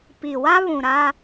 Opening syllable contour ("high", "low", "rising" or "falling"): low